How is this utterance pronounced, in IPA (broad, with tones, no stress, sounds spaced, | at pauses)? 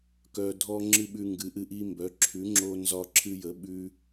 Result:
k œ˦ dʱ ɔ˦ ŋ͡ǁ ɨ˦ ɓ ʉ˦ ŋ ɡ ɨ˨˥ ʔ ɨ˦ ʔ i˦ m b œ˨˥ ǁʰ ʉ˨˥ ŋ͡ǁ o˦ n z ɒ˦ ǁʰ ɨ˦ j ə˨˥ ɓ ʉ˦